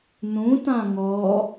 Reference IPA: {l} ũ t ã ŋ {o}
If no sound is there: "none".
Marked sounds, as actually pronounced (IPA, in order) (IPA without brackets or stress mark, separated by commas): n, ɔ